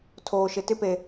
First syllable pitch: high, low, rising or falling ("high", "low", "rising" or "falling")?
low